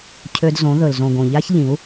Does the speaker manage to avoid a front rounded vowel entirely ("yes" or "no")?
no